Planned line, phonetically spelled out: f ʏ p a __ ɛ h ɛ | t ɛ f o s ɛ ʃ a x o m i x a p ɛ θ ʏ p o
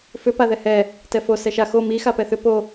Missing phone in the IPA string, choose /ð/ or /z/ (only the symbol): ð